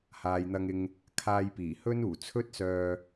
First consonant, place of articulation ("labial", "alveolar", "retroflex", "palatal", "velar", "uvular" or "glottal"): glottal